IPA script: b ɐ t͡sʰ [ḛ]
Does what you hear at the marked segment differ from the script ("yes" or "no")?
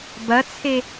yes